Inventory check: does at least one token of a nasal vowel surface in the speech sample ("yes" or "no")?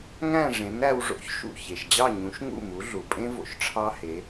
yes